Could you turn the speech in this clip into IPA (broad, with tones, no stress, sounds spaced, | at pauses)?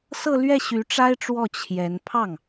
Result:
s ɤ˥˧ l ɥ ɛ˥˩ ɕ y˧˥ ʈ͡ʂ a˥ ɪ̯ ʈ͡ʂ w ɔ˥˩ t͡ɕʰ j ɛ˧˥ n pʰ ɑ˥˩ ŋ